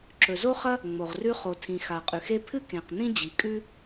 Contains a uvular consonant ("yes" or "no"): yes